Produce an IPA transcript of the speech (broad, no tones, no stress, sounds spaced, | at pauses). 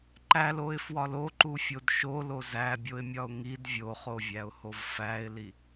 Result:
ǃ æ l o ɪ̯ f w ɒ l o ǃ u fʲ o d ʃ o l o z æ bʲ o ɪ̯ mʲ ɒ ʊ̯ ŋ i d vʲ o χ o vʲ æ ʊ̯ h o v f æ ɪ̯ l i